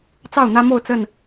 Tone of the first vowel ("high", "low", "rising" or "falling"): falling